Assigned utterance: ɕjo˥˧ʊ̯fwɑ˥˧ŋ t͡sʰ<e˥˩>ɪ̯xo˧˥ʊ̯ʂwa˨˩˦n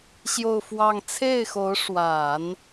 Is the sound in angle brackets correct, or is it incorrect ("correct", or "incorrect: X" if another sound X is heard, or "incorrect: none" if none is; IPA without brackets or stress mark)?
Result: correct